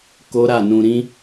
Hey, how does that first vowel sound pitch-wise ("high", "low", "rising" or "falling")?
high